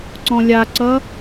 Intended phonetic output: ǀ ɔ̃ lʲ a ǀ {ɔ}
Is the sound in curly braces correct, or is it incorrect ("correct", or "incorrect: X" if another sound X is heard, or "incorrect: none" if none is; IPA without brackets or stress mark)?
incorrect: ʌ